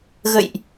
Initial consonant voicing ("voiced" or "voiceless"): voiced